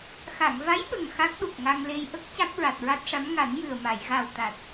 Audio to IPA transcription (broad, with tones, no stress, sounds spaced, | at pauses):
x a˨˩˨ ŋ v a˧˥ j ɓ ə˨˩ ŋ x a˦˥ k̚ ɗ u˨˩ k̚ ŋ a˧ ŋ l e˧ j ʔ ə˦˥ k̚ c a˦˥ k̚ ɹ a˨˩ t̚ ɹ a˦˥ t̚ ʂ a˧˥ m ŋ a˨˩˦ n j ɨ˨˩ ə̯ m a˨˩˨ j ɣ a˨˩ w t̪ a˨˩ t̚